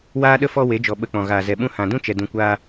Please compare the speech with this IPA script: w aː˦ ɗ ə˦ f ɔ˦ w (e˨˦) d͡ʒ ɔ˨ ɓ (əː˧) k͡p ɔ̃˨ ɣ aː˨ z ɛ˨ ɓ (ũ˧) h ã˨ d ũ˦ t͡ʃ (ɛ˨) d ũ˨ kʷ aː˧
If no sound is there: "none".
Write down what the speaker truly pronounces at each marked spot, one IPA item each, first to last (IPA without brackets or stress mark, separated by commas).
e˨˦, ə˧, ũ˧, ɛ˨